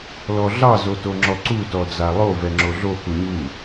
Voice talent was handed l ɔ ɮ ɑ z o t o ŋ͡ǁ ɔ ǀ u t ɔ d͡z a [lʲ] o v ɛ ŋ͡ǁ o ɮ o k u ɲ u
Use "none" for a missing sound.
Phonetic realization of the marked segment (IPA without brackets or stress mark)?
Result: lˠ